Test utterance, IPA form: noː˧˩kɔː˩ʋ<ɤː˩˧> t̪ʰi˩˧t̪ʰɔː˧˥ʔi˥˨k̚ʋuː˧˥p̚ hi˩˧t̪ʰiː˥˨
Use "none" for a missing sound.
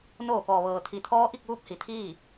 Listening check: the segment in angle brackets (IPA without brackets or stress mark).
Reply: ɤː˩